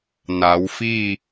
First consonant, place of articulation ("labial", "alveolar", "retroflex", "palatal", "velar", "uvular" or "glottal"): alveolar